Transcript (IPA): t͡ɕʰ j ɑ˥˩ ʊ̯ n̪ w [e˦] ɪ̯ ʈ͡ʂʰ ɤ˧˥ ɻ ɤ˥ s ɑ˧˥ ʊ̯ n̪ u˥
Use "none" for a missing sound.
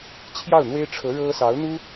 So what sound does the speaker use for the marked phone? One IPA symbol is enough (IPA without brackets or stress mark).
e˥